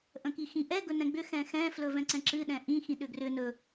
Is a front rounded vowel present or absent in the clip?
present